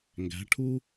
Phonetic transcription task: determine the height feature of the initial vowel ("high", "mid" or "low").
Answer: low